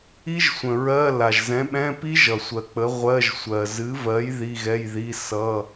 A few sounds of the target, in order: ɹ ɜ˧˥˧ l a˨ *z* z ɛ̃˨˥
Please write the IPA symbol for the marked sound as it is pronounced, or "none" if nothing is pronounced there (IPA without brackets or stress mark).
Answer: ʒ